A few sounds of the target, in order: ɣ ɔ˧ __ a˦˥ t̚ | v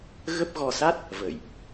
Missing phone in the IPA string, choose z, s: s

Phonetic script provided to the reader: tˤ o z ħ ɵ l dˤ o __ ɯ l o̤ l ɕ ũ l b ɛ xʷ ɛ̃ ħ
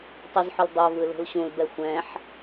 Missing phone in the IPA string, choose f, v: v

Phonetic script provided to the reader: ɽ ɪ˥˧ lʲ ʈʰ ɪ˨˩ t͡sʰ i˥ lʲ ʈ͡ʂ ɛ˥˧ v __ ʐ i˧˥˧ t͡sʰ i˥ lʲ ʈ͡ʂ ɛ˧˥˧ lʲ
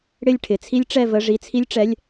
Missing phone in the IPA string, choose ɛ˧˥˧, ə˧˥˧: ə˧˥˧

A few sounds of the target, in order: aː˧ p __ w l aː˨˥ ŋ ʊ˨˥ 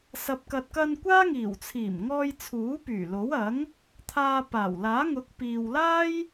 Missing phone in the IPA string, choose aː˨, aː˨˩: aː˨˩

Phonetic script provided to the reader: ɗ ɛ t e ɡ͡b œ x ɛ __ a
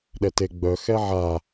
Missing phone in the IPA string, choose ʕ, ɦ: ʕ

